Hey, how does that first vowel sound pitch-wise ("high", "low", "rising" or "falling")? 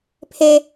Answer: high